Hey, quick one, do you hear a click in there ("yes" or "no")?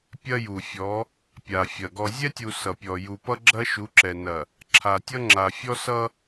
yes